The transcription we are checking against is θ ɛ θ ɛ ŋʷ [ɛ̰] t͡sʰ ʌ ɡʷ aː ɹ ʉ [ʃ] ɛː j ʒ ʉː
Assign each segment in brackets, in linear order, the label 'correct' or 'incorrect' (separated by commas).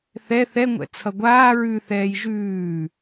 correct, incorrect